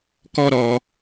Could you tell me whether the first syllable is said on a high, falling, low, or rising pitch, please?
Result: high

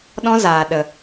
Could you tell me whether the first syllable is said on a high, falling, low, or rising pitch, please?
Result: high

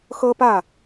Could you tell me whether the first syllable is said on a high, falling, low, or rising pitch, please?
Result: high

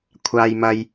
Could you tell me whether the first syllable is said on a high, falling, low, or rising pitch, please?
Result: high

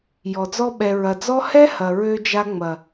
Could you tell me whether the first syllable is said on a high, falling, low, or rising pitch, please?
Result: low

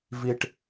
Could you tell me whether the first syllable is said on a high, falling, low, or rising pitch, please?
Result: high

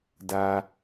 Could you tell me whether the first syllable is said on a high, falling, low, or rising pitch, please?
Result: low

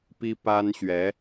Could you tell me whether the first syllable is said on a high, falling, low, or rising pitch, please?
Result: high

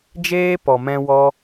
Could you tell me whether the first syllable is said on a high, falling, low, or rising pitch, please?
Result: high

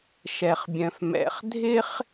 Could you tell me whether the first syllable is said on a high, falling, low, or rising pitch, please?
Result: low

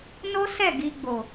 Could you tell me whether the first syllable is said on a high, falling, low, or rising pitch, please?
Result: high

